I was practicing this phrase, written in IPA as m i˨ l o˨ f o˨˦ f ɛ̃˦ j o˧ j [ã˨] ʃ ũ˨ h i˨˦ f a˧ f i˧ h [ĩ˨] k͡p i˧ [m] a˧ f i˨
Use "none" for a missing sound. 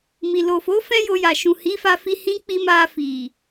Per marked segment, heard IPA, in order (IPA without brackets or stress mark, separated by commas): a˨, ĩ˦, m